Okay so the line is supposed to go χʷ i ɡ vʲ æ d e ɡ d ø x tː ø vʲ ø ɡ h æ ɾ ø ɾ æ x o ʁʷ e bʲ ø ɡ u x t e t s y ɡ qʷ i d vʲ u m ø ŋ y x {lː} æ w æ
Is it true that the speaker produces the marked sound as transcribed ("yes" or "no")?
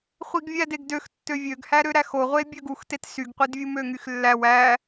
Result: yes